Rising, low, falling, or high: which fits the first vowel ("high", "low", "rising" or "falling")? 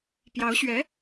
rising